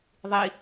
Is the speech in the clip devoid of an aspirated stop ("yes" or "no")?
yes